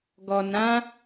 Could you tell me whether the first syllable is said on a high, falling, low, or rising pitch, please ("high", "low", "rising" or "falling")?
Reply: low